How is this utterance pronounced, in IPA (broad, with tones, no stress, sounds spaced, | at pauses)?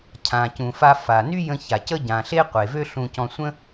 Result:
cʰ ã˩ c ũ˩ f a˧ f a˩ n y˥ j ə̃˧ ç a˩ c ə˥ ɟ ã˩ ɬ e˥ qʷ e˩ v ø˥ ɬ ũ˧ c ɔ̃˧ sʷ ə̃˥